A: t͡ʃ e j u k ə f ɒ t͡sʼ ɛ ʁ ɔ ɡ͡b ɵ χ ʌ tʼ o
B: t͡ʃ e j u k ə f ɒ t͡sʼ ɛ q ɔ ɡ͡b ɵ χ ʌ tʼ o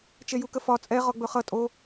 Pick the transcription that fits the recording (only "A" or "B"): A